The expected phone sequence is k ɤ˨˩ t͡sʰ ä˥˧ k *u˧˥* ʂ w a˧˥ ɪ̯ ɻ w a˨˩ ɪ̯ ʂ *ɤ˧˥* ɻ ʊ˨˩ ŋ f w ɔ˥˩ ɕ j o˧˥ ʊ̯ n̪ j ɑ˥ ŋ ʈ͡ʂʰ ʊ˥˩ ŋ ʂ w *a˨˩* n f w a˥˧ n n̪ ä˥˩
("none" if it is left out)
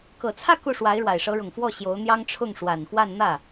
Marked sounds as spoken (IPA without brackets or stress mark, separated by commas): u˥˩, ɤ˧˥, a˨˩